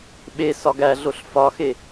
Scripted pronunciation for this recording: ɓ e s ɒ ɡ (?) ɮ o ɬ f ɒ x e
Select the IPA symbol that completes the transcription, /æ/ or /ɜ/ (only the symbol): æ